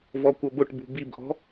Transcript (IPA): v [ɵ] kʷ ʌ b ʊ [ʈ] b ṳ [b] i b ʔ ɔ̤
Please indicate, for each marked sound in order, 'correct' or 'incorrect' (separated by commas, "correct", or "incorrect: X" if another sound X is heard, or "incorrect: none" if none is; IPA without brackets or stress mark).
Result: incorrect: ɔ, correct, correct